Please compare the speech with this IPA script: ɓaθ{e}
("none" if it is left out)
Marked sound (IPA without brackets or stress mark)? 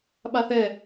ɛ